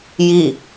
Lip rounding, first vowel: unrounded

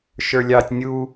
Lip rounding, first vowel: unrounded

